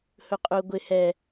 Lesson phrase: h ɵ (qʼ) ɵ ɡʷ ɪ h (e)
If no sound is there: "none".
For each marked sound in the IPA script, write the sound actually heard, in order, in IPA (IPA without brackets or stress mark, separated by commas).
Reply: qʼ, ɛ